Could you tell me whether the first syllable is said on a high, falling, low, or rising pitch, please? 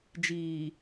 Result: low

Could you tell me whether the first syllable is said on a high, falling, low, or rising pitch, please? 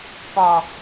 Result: low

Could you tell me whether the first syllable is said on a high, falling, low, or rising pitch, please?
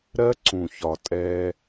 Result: high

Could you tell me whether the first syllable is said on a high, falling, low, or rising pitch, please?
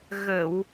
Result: low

